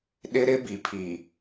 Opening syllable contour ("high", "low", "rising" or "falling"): high